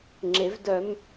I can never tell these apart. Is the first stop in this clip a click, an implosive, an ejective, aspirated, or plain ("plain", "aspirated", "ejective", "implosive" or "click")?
click